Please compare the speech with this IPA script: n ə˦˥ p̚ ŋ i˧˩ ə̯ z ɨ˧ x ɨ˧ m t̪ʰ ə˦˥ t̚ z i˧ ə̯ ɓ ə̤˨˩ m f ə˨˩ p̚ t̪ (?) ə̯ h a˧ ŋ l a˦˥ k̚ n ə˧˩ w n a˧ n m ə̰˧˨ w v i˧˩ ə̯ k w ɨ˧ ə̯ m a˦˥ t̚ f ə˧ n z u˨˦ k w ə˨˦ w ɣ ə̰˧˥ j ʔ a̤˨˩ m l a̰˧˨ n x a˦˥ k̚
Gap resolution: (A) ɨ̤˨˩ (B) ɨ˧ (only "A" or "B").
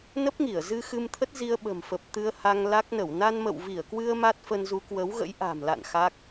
B